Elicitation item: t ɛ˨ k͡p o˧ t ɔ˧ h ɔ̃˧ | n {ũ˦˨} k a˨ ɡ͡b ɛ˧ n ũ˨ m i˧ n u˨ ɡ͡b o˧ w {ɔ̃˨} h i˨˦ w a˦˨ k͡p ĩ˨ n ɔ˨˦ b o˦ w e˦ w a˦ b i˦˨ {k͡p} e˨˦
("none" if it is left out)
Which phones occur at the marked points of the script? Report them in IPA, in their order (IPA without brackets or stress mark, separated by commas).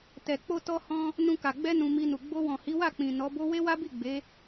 ũ˧, ɔ̃˨, ɡ͡b